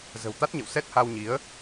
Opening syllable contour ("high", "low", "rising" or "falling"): low